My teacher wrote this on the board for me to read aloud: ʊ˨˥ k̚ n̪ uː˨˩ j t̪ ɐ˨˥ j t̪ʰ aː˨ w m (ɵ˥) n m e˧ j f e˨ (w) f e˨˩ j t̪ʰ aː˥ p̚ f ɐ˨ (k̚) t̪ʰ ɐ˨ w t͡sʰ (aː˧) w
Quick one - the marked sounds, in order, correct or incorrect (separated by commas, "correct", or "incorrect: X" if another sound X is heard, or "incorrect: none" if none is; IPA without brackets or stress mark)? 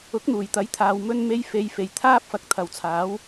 incorrect: ɵ˧, incorrect: j, correct, incorrect: aː˨˥